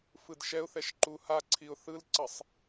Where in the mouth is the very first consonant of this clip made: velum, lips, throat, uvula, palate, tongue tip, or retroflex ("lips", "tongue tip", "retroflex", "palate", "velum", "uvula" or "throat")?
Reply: lips